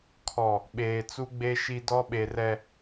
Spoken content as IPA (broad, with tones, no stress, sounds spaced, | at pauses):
kʰ ɔ˨ | ɓ eː˨ t͡s u˦ ɡ͡b e˦ ʃ i˦ d ɔ˦ ɓ e˨ r ɛ˨